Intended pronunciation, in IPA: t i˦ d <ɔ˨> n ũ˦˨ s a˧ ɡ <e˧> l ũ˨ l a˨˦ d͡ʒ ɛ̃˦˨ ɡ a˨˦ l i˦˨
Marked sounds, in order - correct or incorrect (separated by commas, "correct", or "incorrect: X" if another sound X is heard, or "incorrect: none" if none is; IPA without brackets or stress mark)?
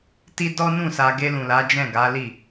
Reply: incorrect: ɔ˦, correct